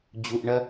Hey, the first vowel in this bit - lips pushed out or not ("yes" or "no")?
yes